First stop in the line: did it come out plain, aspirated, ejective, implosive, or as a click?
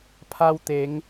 aspirated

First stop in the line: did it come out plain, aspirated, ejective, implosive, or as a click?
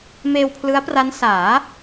aspirated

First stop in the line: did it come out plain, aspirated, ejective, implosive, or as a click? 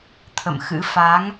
aspirated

